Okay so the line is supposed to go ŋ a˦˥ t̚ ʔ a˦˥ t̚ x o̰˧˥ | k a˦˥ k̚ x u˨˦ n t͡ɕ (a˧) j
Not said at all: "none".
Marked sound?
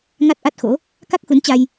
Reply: a˧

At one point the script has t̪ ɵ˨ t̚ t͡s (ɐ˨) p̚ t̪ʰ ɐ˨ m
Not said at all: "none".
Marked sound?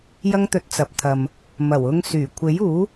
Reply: ɐ˨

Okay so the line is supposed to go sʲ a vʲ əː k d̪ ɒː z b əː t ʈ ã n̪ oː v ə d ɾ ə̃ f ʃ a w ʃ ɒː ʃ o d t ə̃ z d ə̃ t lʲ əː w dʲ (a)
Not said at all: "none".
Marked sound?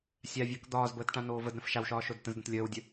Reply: ə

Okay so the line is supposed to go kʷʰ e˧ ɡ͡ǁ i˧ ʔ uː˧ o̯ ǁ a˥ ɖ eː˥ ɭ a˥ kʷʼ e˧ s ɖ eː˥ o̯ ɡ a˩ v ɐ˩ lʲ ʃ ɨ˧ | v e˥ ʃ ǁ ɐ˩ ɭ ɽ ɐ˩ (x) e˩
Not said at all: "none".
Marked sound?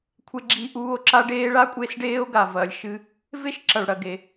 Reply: ɡ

